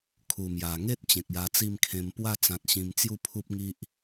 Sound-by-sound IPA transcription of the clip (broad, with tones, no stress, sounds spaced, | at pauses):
kʰ u˨˩ m j a˨˩ ŋ e˦ t̚ t͡ɕ ẽ˨ k̚ j a˧ t͡s i˥˧ m kʰ ẽ˧ m p w a˥˧ t͡s ã˨ t̚ ɕ ĩ˧ m t͡s j u˥˧ pʰ u˦ p̚ ŋ i˦ ʔ